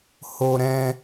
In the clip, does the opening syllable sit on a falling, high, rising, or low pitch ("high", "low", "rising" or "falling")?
high